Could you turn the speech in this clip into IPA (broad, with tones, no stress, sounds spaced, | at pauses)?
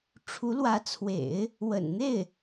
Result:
ʈ͡ʂʰ u˧˥ l w ä˧˥ t͡sʰ w ḛ˨˩˦ ɪ̯ | w ə̰˨˩ n n̪ e˥˩ ɪ̯